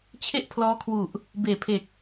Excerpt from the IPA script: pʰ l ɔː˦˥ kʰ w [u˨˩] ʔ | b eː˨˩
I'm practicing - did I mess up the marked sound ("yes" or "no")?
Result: no